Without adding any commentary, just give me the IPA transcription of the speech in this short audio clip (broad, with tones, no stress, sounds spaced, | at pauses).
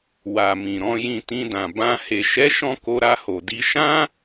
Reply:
w a˨ m ĩ˨ ɾ ɔ̃˧ j ĩ˧ t ĩ˧ d ã˨ b ã˧ h e˨ ʃ ɛ˨˦ ʃ ɔ̃˧ k o˧ ɾ a˧ h o˨ d i˧ ʃ ã˦